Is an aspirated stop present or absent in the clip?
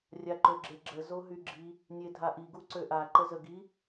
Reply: absent